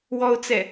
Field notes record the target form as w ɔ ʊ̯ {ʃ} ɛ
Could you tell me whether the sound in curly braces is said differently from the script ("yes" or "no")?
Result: yes